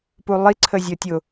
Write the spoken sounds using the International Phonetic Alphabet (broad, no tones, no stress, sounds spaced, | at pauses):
p u lˠ i ǀʰ ə zʲ ɔ tʲ ʊ